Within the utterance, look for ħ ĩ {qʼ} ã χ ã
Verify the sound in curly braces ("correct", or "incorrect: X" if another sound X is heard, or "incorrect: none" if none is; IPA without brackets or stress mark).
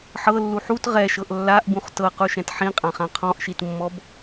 correct